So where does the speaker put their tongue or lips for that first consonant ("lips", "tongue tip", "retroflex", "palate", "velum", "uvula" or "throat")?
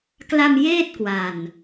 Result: velum